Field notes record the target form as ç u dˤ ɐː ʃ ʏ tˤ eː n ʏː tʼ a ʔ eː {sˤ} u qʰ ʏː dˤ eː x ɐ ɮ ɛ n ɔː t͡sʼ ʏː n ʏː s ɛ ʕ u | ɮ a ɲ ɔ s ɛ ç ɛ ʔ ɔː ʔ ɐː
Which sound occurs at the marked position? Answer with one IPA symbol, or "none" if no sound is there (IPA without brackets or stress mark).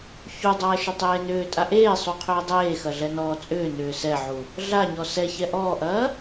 sˤ